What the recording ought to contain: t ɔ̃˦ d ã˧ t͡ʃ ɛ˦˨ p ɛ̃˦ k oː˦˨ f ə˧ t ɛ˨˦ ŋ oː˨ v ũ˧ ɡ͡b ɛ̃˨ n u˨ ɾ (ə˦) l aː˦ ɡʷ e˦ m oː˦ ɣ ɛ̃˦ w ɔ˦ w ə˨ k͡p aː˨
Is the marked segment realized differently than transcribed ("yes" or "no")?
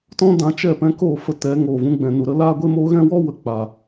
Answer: no